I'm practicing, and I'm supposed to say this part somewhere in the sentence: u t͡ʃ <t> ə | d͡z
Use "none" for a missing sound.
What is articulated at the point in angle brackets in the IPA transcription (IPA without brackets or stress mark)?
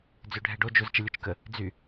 k